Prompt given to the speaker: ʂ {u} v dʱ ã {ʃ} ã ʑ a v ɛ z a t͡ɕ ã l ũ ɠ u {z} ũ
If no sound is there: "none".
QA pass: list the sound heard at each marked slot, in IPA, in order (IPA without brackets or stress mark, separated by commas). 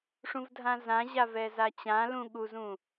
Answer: ũ, z, z